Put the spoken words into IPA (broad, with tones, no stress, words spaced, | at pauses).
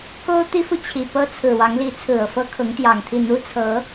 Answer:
ko˥ʊ̯t̪i˥fu˨t͡ɕʰi˨˩ pɤ˥t͡sʰɹ̩˨˩ wɑ˧˥ŋli˧˥ t͡sʰɹ̩˨˩ɤ˥˩fɤ˥ kʰʊ˧˥ŋt̪jɑ˨˩ŋt̪ʰi˥˩ n̪u˥t͡sʰɤ˧˥